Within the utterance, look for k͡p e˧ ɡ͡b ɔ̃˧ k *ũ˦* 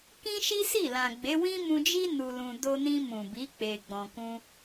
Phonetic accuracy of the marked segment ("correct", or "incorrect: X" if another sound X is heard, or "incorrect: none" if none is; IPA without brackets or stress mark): correct